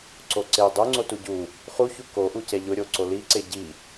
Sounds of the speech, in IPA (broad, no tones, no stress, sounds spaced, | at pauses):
ǀ o ǀ e dˤ u ŋ͡ǀ o t u ɟ u | χ u ç u k o ʔ u c ɛ ʎ ʊ ɾʲ o ǀ o l i ǀ e ɟ i